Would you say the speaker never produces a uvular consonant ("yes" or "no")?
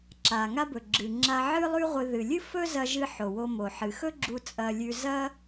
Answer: no